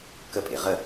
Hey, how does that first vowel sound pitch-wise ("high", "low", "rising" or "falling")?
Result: falling